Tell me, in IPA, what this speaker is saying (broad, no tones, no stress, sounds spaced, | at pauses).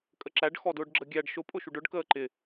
kʼ ə ǁ æ ɖ x ɔ d ʊː ɖ ɡ͡ǁ ə ɡʲ æ ɖ ʃ ʊ pʼ ʊ ʃ u ɖ ʊ ɖ k əː ǃ ɪ